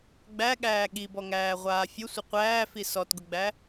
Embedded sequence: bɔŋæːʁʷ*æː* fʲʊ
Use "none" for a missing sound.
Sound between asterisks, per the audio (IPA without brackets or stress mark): aː